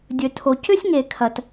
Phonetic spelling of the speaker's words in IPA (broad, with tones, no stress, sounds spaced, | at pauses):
dʲ ɵ˩ tʰ o˩ c ʏ˥ sʲ ŋ e˩ kʰ ɐ˩ t